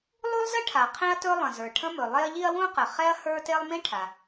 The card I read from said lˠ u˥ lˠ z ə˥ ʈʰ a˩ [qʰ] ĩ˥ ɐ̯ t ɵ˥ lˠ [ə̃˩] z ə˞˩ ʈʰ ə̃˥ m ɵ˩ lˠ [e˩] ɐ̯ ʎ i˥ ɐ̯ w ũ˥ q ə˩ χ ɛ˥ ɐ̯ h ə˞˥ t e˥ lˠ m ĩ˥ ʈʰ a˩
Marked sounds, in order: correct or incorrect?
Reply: correct, correct, incorrect: e˥

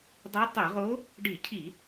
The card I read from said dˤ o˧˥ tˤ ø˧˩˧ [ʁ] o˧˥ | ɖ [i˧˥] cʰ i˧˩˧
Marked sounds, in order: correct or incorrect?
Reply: correct, incorrect: i˧˩˧

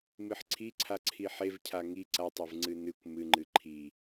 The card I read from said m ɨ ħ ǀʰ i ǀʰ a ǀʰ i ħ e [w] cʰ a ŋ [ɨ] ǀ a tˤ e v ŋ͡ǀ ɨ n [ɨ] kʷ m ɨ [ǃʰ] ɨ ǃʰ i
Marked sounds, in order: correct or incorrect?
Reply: incorrect: v, incorrect: i, correct, incorrect: ŋ͡ǃ

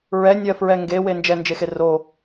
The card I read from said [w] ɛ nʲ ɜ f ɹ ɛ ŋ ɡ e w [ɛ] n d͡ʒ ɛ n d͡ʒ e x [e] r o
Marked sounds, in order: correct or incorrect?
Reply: incorrect: ɹ, incorrect: e, correct

